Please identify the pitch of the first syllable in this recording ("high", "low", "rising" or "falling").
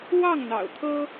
falling